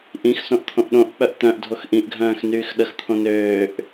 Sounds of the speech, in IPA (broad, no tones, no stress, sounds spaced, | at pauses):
ʔ ĩ x s õ ʔ t̪ʰ õ ʔ ɗ õ ʔ k͡p œ ʔ t̪ œ̃ ʔ dʱ o x ʔ ĩ ʔ ɡʱ œ̃ː x n yː x ɗ ə x t̪ʰ õ n øː ʔ